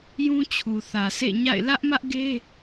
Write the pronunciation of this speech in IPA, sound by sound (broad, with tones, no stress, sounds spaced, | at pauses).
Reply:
j ũ˦ t͡ɕʰ u˨ θ ä˨ sʰ ḛ˦˨ ɲ a̰˦˨ ɪ̯ l ä˦ ʔ m ä˦ ʔ ɡ e˦